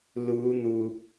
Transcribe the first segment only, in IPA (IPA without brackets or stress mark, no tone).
l